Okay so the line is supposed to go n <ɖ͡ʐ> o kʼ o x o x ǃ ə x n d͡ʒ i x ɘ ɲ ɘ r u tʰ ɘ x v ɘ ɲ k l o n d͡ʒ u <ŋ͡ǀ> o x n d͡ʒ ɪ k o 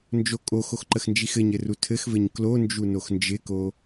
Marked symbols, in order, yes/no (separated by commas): no, no